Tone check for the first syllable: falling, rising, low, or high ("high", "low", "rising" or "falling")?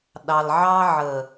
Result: low